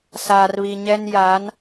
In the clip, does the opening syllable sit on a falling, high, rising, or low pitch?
low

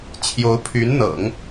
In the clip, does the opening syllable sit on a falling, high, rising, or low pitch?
rising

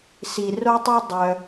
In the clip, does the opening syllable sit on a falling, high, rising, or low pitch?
low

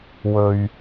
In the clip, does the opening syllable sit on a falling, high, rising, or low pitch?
low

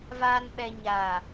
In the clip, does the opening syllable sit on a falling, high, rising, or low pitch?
low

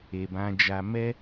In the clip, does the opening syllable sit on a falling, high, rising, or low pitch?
low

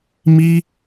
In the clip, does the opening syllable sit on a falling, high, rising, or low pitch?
high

